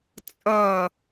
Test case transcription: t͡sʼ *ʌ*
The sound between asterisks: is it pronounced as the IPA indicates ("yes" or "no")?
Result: yes